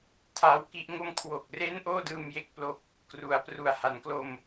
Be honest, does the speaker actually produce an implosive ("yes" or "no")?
no